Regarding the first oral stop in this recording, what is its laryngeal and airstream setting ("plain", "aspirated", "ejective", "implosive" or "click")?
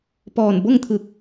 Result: plain